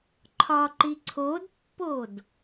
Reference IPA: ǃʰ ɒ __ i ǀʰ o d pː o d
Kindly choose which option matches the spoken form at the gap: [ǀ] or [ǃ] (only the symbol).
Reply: ǃ